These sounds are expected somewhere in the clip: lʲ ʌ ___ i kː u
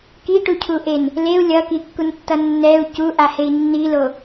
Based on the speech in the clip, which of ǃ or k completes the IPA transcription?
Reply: k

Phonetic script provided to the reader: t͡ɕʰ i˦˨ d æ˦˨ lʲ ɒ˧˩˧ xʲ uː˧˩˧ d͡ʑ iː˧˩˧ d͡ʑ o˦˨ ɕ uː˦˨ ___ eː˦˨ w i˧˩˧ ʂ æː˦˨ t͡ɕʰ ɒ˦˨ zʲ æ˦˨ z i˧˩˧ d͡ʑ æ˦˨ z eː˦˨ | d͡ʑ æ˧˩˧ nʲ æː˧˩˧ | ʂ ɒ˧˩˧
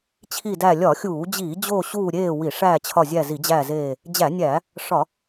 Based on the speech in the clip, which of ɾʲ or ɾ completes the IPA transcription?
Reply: ɾʲ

